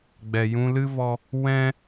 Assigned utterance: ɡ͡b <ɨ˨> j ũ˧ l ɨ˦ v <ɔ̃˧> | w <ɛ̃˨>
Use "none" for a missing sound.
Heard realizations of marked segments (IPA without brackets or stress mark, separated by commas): ɛ˨, ɔ˧, ɛ̃˦